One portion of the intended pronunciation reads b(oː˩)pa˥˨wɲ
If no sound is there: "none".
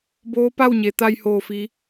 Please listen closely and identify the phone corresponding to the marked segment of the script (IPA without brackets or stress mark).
oː˧˥